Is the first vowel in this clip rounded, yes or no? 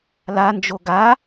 no